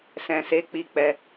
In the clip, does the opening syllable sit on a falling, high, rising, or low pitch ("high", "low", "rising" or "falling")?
low